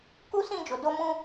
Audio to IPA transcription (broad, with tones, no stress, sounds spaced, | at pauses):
k u˦ s ĩ˦˨ d͡ʒ o˨ d o˧ m ũ˧